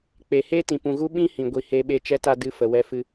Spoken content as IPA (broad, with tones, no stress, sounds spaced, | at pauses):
k͡p e˨ h e˦ t ĩ˨ p ũ˨ ɣ u˦ ɓ ĩ˦ h ĩ˨ ɡʷ i˨ h e˧ ɓ e˦˨ t͡ʃ ɛ˦ t a˦ d ɨ˧ f ə˨ w ɛ˧ f ɨ˧